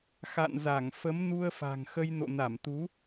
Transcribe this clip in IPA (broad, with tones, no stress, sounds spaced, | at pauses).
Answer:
x a̰˧˨ n z a˧˩ ŋ f ə˨˦ m n u˧ ə̯ f a̤˨˩ ŋ x ə˧ j n o̰˧˨ n a˧˩ m t̪ u˨˦